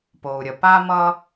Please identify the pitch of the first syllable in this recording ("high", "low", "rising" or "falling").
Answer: low